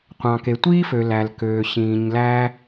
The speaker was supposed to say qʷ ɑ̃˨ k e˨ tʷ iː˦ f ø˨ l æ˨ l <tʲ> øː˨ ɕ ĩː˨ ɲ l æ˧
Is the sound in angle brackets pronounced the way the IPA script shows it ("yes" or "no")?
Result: no